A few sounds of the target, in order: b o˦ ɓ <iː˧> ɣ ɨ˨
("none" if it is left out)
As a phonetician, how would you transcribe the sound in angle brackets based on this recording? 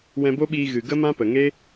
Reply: iː˧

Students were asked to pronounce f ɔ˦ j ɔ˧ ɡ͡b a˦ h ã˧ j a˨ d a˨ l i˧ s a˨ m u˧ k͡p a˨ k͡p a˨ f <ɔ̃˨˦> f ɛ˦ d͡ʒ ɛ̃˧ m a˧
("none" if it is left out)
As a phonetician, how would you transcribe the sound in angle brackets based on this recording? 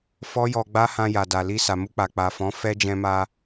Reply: ɔ̃˨˦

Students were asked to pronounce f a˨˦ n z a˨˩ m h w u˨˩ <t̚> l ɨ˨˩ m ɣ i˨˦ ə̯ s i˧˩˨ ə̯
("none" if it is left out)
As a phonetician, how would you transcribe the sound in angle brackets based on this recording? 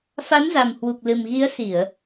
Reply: k̚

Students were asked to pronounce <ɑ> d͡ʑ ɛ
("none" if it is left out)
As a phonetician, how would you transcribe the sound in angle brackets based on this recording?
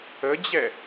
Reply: ə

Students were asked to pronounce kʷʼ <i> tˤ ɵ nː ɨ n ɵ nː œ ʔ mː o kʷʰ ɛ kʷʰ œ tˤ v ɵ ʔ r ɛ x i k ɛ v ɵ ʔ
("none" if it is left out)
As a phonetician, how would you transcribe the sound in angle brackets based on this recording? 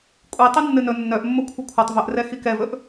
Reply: i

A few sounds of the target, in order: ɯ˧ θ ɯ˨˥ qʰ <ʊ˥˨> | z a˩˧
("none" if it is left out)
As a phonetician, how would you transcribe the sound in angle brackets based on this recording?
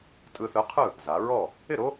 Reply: ɯ˥˨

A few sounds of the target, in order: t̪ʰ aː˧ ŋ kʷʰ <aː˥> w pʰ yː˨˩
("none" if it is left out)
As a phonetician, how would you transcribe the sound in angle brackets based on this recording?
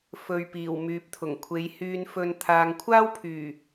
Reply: aː˥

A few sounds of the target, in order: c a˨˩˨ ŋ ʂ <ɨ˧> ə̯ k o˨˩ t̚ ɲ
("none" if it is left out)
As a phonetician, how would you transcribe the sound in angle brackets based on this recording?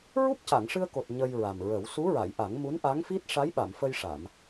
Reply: ɨ˧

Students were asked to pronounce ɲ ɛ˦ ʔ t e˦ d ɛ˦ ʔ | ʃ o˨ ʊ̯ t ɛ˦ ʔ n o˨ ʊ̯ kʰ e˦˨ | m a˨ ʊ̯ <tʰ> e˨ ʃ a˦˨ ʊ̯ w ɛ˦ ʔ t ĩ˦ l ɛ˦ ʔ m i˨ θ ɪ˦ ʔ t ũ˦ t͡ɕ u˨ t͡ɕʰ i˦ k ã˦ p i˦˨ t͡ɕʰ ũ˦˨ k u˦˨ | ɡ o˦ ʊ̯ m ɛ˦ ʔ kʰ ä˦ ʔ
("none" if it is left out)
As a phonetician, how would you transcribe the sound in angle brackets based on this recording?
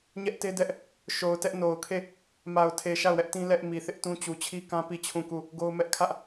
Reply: tʰ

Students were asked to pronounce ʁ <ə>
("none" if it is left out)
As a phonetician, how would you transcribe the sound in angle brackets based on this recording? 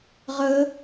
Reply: ə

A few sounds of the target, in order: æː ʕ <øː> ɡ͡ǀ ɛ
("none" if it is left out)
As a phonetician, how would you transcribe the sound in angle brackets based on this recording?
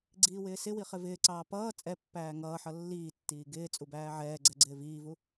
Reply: ɛː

